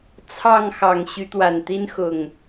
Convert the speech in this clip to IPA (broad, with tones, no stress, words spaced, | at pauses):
t͡sʰɑ˥˨ŋxɑ˨˩ŋ ɕy˨˦t̪wa˨˩nt̪i˦n xʊ˨˩ŋ